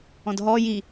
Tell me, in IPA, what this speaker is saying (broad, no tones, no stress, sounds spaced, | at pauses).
ɔ̃ d ɦ ɔ j i